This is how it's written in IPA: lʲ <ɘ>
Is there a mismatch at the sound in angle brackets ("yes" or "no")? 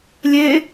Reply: yes